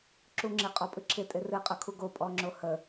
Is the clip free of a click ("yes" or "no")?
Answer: no